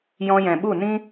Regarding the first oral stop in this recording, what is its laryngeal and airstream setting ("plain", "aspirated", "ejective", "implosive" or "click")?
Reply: implosive